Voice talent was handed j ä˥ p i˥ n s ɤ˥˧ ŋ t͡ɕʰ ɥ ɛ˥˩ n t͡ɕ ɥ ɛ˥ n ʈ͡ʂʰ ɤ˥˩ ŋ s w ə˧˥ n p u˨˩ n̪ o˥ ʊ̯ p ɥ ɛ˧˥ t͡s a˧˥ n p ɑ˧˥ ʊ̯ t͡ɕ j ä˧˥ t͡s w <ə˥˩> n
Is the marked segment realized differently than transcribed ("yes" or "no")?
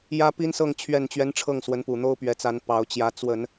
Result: yes